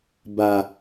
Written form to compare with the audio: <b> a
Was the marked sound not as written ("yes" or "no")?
no